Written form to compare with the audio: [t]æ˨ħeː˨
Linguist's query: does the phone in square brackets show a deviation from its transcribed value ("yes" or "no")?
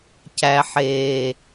yes